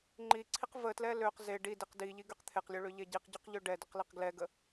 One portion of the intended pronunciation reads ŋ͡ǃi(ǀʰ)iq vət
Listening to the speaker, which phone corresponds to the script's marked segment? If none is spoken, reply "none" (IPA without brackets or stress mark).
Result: ǀʰ